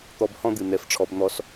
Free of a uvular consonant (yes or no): yes